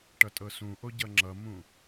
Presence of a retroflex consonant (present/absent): present